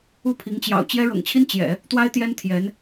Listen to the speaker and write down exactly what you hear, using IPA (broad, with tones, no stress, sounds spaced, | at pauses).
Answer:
u˥˩ pʰ i˧˥ ŋ t͡ɕ j ɑ̰˨˩ ʊ̯ t͡ɕ j ɛ˥ ɻ ɤ̰˨˩ ŋ t͡ɕʰ i˥ n t͡ɕ j ɛ̰˨˩˦ | t̪ w a˥ ɪ̯ t̪ j ɛ˥ n t̪ʰ j ɛ˧˥ n